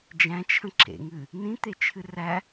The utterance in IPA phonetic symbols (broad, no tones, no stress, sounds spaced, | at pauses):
d͡ʒ æ̃ t͡ʃʰ ə̃ ǁ ḛ ŋ ɨ | n ĩ t̪ e t͡ʃʰ ɨ r æ